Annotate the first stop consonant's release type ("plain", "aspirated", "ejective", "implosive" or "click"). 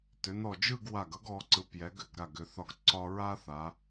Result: plain